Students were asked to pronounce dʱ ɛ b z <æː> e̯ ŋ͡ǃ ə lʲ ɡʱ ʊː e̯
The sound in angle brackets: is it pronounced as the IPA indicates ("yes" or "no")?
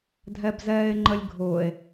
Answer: no